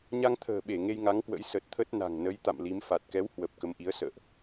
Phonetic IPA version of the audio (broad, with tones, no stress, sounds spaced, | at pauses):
ɲ a˧ ŋ t̪ʰ ə̤ː˨˩ ɓ e˧˩ ŋ e˧ j ŋ a˨˦ ŋ k w ə̰˧˥ j s ə˨˩ t̚ t̪ʰ ə˦˥ t̚ n a̤˨˩ ŋ n ə˨˦ j t̪ a̰˧˨ m l i˨˦ m f a˨˩ t̚ k ɛ˨˦ w h w ə˨˩ p̚ k ə˨˦ m ʔ i˨˦ ə̯ s ə̰ː˧˨ ʔ